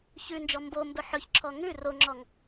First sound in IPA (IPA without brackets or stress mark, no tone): ç